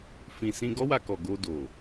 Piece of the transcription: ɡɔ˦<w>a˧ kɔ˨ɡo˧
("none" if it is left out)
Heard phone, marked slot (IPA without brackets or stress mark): w